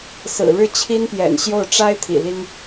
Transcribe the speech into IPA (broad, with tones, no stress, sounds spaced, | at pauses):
s ɹ̩˨˩ ɻ ɻ̩˥˩ t͡ɕʰ i˥ n p j ɛ̰˨˩ n ɕ j o˥˩ ʊ̯ ʈ͡ʂ a˥ ɪ̯ t̪ʰ ḭ˨˩ l i˥ ŋ